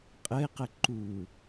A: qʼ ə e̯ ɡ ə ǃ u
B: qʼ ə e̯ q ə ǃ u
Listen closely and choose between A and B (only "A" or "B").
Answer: B